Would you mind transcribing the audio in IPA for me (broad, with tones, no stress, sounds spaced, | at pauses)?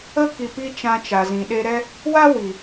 ə˦ k i˧ p i˦ t͡ʃ ã˧ t͡ʃ a˨ z ĩ˨ ɗ e˧ ɾ ɛ˦ | w a˦ w i˨